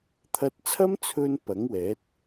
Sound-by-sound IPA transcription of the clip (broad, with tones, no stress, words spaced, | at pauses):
t̪ʰɐ˧t̚t͡sʰɐ˥mt͡sʰɵ˧n pɐ˨˥ŋwɛː˨˥t̚